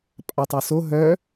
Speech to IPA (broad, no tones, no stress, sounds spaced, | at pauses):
pʼ a tˤ ø s o ɦ œ